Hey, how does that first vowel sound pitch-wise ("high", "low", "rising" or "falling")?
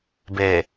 low